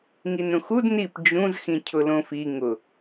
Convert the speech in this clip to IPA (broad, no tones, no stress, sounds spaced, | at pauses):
ŋ i n ɾ ũ x u d n i p d͡ʒ ũ z x ĩ cʰ ʊ l õ f i ŋ ʊ